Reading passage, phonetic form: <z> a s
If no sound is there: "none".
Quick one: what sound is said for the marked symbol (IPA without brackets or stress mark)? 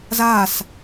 z